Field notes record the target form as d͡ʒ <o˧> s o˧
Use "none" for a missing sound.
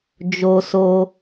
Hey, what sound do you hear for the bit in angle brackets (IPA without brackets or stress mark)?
o˧